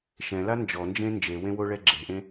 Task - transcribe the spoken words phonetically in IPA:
ʃ ɛ̃ l a n d͡ʒ ɔ n d͡ʒ ẽ n d͡ʒ e w ẽ w o ɭ ɛ ɡ͡ǁ e̤ ʔ ẽ

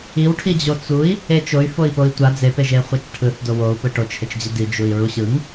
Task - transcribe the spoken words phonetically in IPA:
i w ʈʰ i d͡ʑ o t͡s u i̯ | e t͡ʃ o y̯ f o i̯ p o i̯ tʷ a d͡z e p e ʒ e χʷ a t͡ʃ ʈʰ ɯ θ d o w o u̯ p ɯ ʈ o t͡ʃ h e t͡ʃ d͡ʑ i d i d͡ʒ u i̯ ɹ u ɕ ɯ ŋ

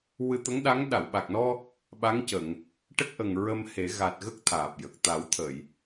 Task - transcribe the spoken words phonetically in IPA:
w ɨ˧ t̪ ə˧˥ ŋ ɗ a˧˥ ŋ ɗ a˨˩˨ w ɓ a˨˩ k̚ n ɔ˧ | ɓ a˧˥ ŋ c ə˨˩˨ ŋ | ʈ ə˦˥ k̚ ʔ ə˨˩ ŋ ɹ ə˧ m h e˨˩˦ ɣ a˨˩ t̚ ɣ ə˦˥ k̚ t̪ʰ aː˨˩ p̚ j ə˨˩ k̚ t̪ a˨˩˦ w t̪ʰ ə˨˩˨ j

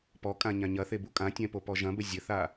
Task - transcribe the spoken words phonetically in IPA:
p ɔ kʼ ã ɲ ã ɲ ɐ θ e b u kʼ ã tʲ ɛ̃ p o p ɔ ʒ ɐ̃ b ɘ zʲ ɘ θ a

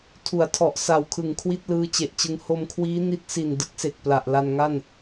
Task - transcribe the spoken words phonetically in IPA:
tʰ u˩˦ a̯ tʰ ɔ˨˩ ʔ s a˨˩ w kʰ ɯ˨˩ ŋ kʰ w i˥˩ t̚ l ɯː˦˥ t͡ɕ e˨˩ ʔ t͡ɕ ɯ˧ ŋ h o˧ m kʰ w iː˦˥ n i˦˥ t̚ s i˨˩ n d ɯ˦˥ k̚ s e˨˩ k̚ p l a˨˩ ʔ l a˧ n ŋ a˥˩ n

